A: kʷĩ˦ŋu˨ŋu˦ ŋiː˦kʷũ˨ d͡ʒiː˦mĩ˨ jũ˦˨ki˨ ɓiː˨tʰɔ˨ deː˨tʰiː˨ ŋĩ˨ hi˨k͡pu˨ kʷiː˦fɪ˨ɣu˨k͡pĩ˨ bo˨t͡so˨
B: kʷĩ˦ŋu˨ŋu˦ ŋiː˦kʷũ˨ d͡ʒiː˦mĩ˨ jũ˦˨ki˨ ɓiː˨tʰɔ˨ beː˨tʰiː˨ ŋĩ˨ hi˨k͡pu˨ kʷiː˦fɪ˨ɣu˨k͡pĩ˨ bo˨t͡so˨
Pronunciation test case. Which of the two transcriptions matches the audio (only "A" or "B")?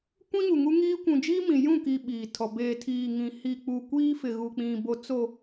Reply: B